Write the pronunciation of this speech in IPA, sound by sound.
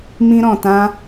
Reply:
m ĩ˦ ɾ ɔ̃˨ t ã˦

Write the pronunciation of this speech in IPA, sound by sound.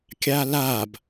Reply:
kʲ a l a b

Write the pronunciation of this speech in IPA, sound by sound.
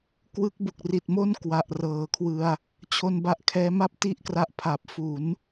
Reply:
k w ɯ˦˥ k̚ b u˨˩ k̚ r i˨˩ t̚ m o˥˩ n k w a˨˩ ʔ r ɤː˩˦ kʰ w ɯ˧ a̯ | t͡ɕʰ o˧ n b a˦˥ ʔ kʰ ɛː˦˥ m a˥˩ p̚ t i˥˩ ʔ k r a˦˥ ʔ pʰ a˨˩ p̚ f u˩˦ n

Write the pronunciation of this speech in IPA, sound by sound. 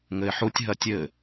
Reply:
ŋ ɘ ɪ̯ ħ u tʲ ɦ ɐ tʲ ɘ

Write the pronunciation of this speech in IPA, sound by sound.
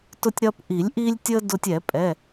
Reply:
t ʊ˧ tʲ ɾ ɐ˧ p ʔ i˨˩˦ lʲ ʔ i˧ lʲ tʲ ə˧ d ʊ˧ tʲ ɛ˨˩˦ pʼ ɛ˩˧˩

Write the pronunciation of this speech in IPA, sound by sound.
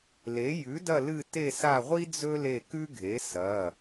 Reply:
l e˩˥ j ʉ˩˥ d ɐ˦˨ l ɨ˦˨ t e˦˨ s a˦˨ ʁʷ i˥ d͡z ɵ˥ l e˦˨ k ʉ˥ ɡʱ e˩˥ s ɐ˩˧˩

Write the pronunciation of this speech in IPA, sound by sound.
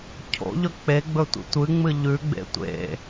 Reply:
cʰ o̰ ʎ ɵ k͡p e ɡ͡b ɵ tʷ ḭ tʷ ɨ ŋ͡m ɨ ʎ ʉ ɡ͡b ḛ tʷ ḛ

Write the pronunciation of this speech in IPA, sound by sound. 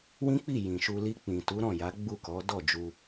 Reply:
w ĩ˦ k͡p i˦˨ j ĩ˨ ʃ u˧ l i˧ k͡p ĩ˨ t u˨˦ ɾ ɔ̃˦˨ j a˨˦ ɡ͡b u˦˨ k ɔ˨˦ d ɔ˦˨ d͡ʒ u˧

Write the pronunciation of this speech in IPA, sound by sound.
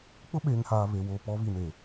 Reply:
k͡p ʊ˦ ɓ eː˨ ŋ h aː˨ β e˨ w o˨ p ɔ˨˦ β i˨ n eː˨

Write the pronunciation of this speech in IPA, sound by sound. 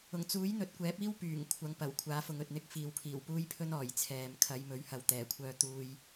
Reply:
ʊ˨˩ ŋ t͡s uː˨˥ j n̪ ɵ˨˥ t̚ kʷ ɛː˨˥ p̚ iː˥ w p yː˨˩ ŋ kʷʰ ɐ˨˧ ŋ p ɐ˨˩ w kʷʰ aː˨˧ f ʊ˨ ŋ ɵ˨ t̚ n̪ ɪ˧ k̚ f iː˨ w pʰ iː˨˩ w p uː˥ j pʰ ɵ˥ n ɔː˨˩ j t͡sʰ ɛː˨ m kʰ ɐ˨˧ j m ɵ˨˥ ɥ h ɐ˨ w t̪ ɛː˨˩ kʷʰ œː˧ t̪ uː˧ j

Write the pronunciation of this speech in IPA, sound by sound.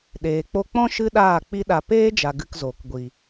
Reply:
ɗ eː˨ k͡p o˧ k͡p ɔ̃˦ ʃ ɨ˦ ɗ aː˦˨ k͡p i˦ ɗ a˧ p eː˦ d͡ʒ a˨ ɡ ɨ˧ k z oː˨ k ɡʷ i˨

